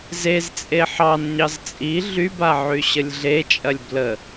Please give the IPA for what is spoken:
z e z t͡sʼ e ħ ɑ n ɲ ɑ z t͡sʼ i ɮ y b a ʕ y ɕ ə lʲ ɮ e t͡ʃʼ ɐ lʲ b l ə

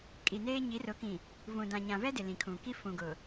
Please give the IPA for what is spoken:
kʼ i˨ n eː˦ ɲ i˨˦ r ʊ˨˦ k ĩ˨ | v ũ˨ d ã˨ ɲ ã˨ v ɛ˦ d ɪ˨ l ĩ˨ kʰ ũ˨ k i˦ f ũ˨ ɡ ʊ˨

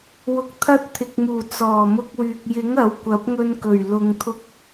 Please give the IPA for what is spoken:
w ʊ˧ k̚ t̪ʰ ɐ˥ t̚ t̪ʰ ɪ˨ k̚ m uː˨˩ t͡s ɔː˨˩ m ʊ˧ k̚ w yː˨ k̚ j ɪ˨˥ ŋ ɐ˨˥ w kʷ ɐ˨˥ p̚ ŋ ɵ˧ n k ɵ˨˩ ɥ l ʊ˨ ŋ t̪ʰ ʊ˧ k̚

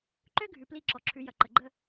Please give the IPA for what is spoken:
ǃ ø˦ ɡʱ ʉ˩ p l i˦˨ ǁ ɔ˩ ǁʰ ʉ˩˧ j ɐ˩ ǃ ə˩ ɡ͡ǃ ə˦˨

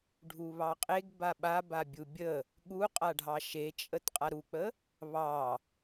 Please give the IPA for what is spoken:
ɖʱ u β ɑ qʼ e ɡ b a ɓ a b a bʲ u bʲ ə | ɠ u qʼ a ɖʱ ɑ ʃ e t͡ʃʼ ə t qʼ a ɾ u k͡p ə | β ɑ

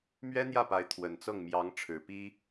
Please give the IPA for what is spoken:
m ɥ ɛ˥ n̪ j ä˥˩ p a˧˥ ɪ̯ t̪ʰ w ə˨˩ n t͡s ɤ˥˩ ŋ m j ɑ˧˥ ŋ ʈ͡ʂʰ ɻ̩˨˩ p i˥

